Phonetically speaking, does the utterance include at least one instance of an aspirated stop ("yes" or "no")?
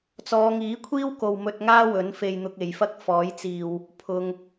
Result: yes